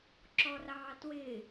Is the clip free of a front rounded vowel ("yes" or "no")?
yes